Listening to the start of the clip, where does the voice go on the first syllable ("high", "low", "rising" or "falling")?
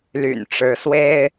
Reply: low